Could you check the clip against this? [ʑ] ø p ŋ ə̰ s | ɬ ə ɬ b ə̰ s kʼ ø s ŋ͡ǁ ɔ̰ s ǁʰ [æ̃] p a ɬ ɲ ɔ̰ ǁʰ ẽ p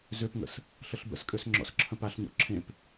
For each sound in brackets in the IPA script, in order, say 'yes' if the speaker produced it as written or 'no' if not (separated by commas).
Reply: no, no